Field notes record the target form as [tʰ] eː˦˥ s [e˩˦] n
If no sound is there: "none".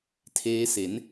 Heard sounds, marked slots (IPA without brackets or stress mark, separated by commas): tʰ, e˩˦